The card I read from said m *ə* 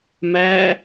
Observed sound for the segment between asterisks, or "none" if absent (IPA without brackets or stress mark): æ